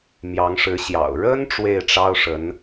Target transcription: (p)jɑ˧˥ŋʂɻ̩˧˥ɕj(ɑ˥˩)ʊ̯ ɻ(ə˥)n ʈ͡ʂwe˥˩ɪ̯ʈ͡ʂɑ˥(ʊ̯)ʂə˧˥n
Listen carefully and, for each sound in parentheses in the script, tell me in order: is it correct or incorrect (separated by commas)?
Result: incorrect, incorrect, correct, correct